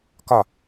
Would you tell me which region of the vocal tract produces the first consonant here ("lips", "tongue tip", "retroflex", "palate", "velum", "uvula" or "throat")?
velum